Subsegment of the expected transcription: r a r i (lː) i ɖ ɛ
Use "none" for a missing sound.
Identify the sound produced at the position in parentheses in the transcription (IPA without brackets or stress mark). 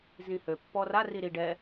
ɾ